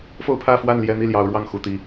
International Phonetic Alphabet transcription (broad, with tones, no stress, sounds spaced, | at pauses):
f o˥˨ ʊ̯ pʰ ä˥˨ f w a˥˨ n l j ɛ˨˦ n̪ i˥˨ l j ɑ˨˦ ʊ̯ ɻ w ɑ˥˨ ŋ x u˨˩ t̪ i˨˦